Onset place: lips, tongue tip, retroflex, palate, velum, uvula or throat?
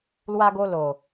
tongue tip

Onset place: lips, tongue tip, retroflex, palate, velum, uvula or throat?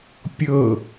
lips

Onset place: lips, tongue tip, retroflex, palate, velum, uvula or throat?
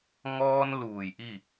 velum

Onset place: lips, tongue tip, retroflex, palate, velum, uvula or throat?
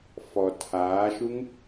lips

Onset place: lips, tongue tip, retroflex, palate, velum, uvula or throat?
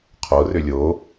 uvula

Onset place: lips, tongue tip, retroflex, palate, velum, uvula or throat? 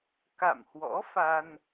velum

